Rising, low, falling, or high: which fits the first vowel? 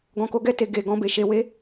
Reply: low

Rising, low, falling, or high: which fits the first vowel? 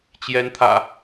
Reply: rising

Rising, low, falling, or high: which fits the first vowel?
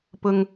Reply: low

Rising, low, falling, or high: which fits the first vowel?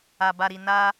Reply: low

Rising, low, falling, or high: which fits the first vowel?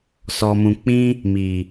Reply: low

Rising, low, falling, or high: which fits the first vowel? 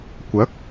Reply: rising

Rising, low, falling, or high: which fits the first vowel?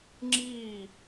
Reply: falling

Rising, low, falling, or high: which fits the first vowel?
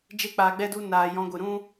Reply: high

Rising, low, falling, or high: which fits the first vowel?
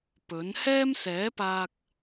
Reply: rising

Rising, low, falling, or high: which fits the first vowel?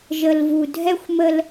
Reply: low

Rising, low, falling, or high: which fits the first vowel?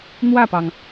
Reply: falling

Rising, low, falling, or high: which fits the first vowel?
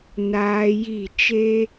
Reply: high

